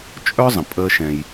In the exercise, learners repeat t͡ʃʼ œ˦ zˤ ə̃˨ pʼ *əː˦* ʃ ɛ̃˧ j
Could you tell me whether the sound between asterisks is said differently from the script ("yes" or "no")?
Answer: no